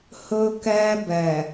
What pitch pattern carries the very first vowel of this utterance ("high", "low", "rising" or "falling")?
high